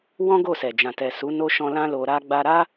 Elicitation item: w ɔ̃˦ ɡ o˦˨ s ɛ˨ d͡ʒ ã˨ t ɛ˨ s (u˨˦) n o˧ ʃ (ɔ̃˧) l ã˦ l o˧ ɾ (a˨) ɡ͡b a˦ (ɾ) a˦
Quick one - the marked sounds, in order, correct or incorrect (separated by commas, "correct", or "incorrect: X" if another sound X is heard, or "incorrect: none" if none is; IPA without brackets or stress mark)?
correct, correct, incorrect: a˦, correct